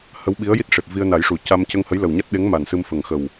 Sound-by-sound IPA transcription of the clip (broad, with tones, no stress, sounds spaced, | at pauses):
h ə˧˥ w ɓ i˧˥ ə̯ j i˦˥ t̚ ʂ e˨˩ p̚ v i˧ ə̯ n a˨˩˦ j ʂ u˨˩˨ c a˧ m c ə˧ ŋ h ə˧˥ j l ə˨˩ w ɲ a˦˥ t̚ ɗ e˧˥ ŋ m a˨˩ n s ɨ˧ m f ə˨˩ ŋ x ə˨˩ w